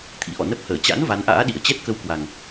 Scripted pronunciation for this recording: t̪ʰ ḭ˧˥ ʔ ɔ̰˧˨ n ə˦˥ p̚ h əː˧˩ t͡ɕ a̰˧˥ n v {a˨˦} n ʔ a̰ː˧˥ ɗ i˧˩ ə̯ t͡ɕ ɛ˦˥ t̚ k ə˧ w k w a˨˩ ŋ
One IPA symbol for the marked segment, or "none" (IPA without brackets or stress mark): a˨˦